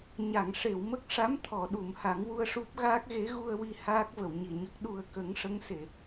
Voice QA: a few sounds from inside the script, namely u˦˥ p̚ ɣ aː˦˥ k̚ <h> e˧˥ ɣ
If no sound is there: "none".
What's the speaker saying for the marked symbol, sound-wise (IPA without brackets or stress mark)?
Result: ɣ